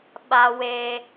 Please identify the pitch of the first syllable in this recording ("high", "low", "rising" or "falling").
high